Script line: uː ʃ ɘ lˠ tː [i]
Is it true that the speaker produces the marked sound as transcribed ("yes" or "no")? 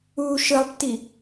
yes